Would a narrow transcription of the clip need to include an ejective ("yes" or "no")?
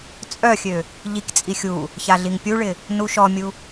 yes